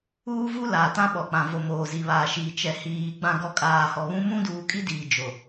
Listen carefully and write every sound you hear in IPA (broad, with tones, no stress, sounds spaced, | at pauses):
uː˦ v u˦ l aː˨ t ã˦ ɓ ɔ˨ k͡p ã˨ v o˨ m oː˨ z i˨ β aː˨ ʃ iː˨ t͡ʃ ɛ˨ h iː˨ ɡ͡b ã˨ ɡ ɔ˨ kʼ aː˨ h ɔ˨ β ũ˦ m ũ˦ d uː˨˦ kʼ i˦ d iː˨ d͡ʒ o˨